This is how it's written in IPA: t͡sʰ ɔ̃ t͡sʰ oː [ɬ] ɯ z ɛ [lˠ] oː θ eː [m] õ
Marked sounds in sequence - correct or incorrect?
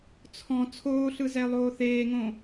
correct, correct, incorrect

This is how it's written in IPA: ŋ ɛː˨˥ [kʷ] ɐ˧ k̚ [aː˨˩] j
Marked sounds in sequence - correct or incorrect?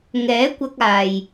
correct, correct

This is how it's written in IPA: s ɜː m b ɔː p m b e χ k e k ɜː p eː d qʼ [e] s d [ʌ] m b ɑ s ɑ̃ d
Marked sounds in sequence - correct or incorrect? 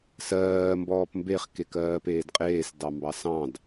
incorrect, incorrect

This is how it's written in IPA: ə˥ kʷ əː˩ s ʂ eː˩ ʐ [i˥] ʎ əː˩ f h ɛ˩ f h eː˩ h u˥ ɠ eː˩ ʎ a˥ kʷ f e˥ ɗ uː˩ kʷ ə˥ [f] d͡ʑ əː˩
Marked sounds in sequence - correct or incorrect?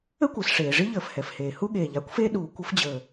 correct, correct

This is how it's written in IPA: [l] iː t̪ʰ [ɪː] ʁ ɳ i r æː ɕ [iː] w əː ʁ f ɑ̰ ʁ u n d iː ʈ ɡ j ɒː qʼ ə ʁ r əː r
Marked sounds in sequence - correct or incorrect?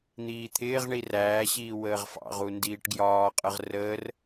incorrect, correct, correct

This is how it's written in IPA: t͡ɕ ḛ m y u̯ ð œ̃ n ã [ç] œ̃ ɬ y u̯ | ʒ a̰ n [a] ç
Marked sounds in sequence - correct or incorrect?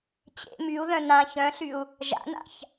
correct, incorrect

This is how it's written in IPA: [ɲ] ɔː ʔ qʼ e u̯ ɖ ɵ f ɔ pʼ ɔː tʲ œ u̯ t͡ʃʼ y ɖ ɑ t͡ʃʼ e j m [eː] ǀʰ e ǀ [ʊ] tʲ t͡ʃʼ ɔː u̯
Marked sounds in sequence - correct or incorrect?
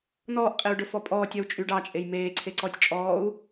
incorrect, correct, incorrect

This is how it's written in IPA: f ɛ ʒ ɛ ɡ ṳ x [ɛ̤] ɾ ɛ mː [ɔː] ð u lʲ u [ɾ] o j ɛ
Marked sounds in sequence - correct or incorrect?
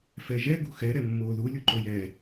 incorrect, incorrect, incorrect

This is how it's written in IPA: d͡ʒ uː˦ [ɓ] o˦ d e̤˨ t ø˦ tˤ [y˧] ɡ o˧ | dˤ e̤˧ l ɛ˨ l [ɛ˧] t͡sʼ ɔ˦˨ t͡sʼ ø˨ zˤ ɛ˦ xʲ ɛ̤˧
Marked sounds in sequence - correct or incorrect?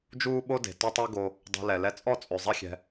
correct, incorrect, correct

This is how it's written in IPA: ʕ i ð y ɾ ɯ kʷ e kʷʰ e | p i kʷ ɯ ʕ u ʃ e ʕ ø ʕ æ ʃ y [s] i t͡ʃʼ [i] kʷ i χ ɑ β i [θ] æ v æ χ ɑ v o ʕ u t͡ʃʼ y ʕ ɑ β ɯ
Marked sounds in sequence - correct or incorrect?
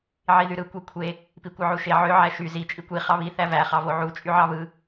incorrect, correct, correct

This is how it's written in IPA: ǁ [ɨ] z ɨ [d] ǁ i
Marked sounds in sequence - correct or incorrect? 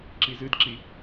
incorrect, correct

